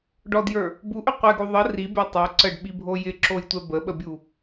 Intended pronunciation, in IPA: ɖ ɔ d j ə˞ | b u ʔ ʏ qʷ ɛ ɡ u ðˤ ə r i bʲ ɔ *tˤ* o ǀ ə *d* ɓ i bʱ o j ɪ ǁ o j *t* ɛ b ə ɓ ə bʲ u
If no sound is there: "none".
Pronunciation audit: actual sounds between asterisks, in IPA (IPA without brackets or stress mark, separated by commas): tˤ, ɖ, tʷ